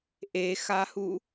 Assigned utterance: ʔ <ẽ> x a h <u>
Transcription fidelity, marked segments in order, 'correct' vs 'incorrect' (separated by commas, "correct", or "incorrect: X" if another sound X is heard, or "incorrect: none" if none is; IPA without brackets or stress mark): incorrect: e, correct